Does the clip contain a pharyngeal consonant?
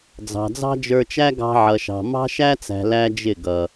yes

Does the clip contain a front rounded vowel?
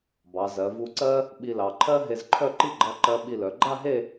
yes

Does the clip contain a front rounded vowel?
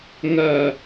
no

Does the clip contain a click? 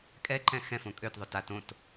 yes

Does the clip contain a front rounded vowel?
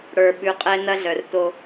yes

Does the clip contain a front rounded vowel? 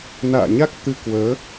no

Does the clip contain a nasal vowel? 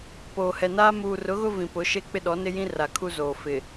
yes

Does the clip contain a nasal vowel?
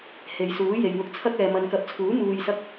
no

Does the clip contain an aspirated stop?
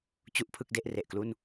yes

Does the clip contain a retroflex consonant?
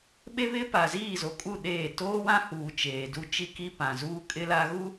no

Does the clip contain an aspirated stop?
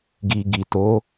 no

